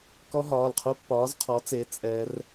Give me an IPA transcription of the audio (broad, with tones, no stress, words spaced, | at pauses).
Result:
kɔ˦˥ɦɒː˩˧˩lqʰu˦˥ pːɒː˨˥zqʰɔ˨˥t͡se˨˥ t͡sʼɛ˦˥r